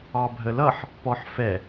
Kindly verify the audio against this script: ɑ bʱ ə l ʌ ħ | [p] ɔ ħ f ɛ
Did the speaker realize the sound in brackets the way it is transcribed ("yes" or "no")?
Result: yes